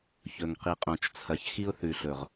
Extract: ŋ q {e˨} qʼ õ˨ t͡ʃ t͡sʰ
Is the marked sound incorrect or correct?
incorrect: i˨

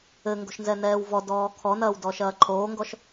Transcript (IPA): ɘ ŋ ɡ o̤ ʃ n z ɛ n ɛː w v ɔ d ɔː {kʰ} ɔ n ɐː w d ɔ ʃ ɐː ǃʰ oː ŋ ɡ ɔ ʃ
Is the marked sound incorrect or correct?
correct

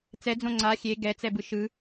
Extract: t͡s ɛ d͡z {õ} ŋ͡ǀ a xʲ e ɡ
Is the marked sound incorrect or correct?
correct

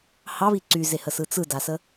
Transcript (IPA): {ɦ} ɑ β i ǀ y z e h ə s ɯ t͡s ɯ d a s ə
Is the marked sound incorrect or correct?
incorrect: h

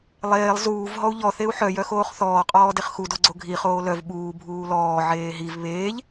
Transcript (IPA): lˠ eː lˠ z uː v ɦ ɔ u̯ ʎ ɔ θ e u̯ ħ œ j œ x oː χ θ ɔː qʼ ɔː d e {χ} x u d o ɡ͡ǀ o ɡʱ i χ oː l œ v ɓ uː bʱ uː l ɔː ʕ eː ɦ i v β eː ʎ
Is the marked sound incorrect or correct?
correct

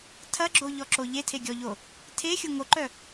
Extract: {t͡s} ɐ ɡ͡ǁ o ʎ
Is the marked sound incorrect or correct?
incorrect: tʰ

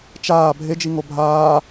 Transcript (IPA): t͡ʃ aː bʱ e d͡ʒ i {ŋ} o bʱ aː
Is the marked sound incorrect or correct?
correct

